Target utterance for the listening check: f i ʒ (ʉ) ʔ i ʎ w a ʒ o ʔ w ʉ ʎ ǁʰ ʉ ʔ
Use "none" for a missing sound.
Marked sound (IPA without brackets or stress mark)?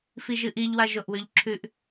ɨ